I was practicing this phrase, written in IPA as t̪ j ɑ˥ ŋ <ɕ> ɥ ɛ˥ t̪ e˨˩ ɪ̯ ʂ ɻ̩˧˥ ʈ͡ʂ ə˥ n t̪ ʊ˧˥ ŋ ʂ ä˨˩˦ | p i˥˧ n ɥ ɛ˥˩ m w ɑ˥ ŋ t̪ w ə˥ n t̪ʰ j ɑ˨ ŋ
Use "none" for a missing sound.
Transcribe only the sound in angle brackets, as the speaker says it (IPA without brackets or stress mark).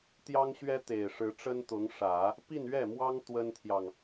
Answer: ɕ